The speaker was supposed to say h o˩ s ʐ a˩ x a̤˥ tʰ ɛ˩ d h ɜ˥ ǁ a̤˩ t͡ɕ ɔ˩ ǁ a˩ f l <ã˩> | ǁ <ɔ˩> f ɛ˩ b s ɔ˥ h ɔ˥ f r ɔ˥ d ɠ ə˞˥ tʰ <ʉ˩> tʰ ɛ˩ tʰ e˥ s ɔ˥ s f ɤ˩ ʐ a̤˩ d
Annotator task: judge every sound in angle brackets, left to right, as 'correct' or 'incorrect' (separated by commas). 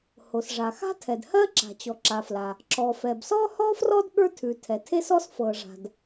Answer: incorrect, correct, correct